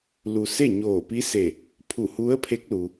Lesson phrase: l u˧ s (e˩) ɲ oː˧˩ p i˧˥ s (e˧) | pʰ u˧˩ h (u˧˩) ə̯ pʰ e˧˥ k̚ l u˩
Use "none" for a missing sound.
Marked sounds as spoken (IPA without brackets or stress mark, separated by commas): e˥˨, e˧˩, u˧˥